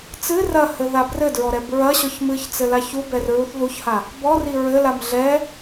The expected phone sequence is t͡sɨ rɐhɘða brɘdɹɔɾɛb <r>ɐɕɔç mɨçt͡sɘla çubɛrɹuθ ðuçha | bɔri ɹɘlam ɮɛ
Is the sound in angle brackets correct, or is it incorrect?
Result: incorrect